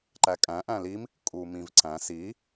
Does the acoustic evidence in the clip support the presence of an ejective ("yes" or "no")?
yes